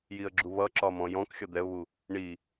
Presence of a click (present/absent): present